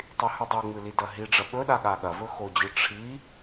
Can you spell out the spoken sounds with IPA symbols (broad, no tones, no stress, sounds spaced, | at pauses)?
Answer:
tˤ i h u dˤ o ŋ͡m ɨ l i d ɐ ɦ i ɖ͡ʐ ɐ ɓ ɵ ɗ a ɠ a ɠ ɐ v ɵ x o d͡ʑ ɨ ʈ͡ʂʰ i